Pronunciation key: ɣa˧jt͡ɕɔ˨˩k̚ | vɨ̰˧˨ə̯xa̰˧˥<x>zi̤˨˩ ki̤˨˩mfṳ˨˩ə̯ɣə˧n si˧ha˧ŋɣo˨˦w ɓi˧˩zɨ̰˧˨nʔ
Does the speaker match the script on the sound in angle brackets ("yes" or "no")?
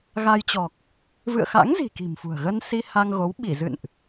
no